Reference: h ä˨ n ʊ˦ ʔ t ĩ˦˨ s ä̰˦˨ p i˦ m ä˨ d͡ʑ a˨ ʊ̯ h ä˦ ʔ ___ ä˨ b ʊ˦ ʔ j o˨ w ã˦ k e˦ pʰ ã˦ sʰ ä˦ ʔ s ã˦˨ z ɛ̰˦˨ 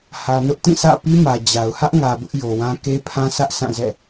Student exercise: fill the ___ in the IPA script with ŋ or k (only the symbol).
ŋ